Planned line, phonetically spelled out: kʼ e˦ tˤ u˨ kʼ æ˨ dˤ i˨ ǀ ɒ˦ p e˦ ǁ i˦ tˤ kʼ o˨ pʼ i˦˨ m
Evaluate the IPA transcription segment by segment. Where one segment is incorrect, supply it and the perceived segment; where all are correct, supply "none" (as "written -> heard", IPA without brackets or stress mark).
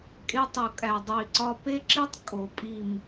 none